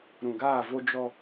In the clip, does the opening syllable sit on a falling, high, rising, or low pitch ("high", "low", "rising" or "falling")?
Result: low